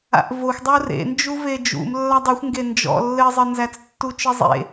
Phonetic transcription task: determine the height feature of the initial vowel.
low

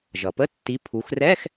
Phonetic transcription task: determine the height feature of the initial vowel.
mid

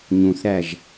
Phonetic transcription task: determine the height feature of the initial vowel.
high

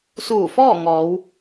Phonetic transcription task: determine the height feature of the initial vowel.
high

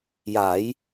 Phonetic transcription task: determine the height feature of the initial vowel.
low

